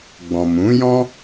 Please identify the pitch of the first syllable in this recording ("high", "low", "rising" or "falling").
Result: low